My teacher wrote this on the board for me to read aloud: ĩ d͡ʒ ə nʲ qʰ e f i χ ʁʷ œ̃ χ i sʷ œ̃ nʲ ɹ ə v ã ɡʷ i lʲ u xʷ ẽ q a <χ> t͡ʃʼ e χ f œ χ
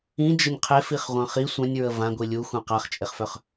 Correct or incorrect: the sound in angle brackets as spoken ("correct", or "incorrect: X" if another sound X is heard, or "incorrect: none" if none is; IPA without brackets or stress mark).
correct